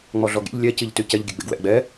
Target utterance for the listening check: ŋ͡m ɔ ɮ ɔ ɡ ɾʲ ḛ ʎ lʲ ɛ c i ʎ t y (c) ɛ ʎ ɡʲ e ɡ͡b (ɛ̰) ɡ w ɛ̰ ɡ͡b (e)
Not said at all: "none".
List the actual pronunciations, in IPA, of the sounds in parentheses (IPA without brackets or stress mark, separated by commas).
c, ḛ, ɛ